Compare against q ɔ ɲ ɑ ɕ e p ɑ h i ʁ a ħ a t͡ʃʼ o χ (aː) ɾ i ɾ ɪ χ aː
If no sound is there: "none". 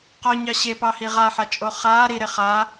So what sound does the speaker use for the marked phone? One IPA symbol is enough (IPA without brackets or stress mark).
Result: aː